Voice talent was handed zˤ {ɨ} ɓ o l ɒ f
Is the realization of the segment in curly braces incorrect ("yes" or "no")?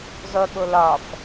yes